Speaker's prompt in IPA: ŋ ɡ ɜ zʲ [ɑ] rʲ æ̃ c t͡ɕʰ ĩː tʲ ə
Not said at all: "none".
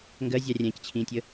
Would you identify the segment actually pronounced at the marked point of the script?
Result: ɑ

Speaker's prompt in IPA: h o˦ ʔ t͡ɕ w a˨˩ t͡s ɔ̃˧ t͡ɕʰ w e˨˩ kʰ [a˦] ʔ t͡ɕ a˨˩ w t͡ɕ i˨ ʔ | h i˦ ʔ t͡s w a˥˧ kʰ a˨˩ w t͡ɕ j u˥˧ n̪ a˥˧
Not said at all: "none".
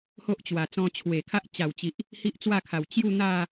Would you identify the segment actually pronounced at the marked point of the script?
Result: a˦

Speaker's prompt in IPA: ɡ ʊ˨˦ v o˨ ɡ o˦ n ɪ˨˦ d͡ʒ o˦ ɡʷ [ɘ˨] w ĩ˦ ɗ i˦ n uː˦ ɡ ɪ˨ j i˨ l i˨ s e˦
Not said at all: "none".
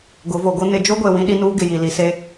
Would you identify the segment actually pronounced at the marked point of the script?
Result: e˨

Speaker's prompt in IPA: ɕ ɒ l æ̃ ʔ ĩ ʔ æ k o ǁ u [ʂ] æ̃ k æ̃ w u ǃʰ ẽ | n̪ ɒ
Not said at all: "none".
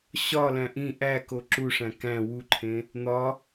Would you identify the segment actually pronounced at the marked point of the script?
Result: ʂ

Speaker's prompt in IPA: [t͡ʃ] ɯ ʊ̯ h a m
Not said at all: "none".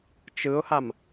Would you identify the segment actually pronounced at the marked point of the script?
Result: t͡ʃ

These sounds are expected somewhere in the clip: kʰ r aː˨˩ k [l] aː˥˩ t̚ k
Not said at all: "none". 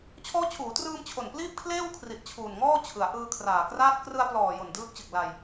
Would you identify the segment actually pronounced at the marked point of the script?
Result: r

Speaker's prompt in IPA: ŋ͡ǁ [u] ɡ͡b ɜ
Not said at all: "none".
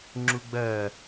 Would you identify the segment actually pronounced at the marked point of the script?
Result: u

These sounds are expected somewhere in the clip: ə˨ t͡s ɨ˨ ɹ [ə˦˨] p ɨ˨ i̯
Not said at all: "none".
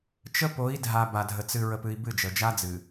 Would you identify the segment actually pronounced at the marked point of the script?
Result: ə˨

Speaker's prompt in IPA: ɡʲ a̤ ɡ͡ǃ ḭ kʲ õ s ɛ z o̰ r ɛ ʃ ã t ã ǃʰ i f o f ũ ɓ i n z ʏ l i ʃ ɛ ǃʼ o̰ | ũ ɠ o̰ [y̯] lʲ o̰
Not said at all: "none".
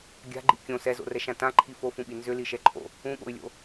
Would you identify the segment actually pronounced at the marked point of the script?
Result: y̯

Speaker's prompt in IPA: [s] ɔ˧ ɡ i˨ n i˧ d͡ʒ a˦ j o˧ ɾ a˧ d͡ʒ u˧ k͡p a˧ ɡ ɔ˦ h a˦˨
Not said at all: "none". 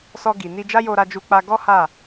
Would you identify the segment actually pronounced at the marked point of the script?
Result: s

